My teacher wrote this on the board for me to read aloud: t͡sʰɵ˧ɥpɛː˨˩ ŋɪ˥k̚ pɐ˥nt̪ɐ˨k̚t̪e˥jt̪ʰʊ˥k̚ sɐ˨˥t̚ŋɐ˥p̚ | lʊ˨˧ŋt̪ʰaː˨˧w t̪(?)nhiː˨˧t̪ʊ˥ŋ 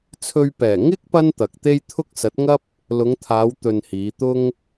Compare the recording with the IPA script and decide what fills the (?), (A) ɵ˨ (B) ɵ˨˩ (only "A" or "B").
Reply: A